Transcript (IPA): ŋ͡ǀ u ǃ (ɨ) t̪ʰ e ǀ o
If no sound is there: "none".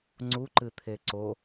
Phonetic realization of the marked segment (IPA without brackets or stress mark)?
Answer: ɨ